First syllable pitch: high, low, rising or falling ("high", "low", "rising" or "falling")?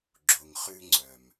low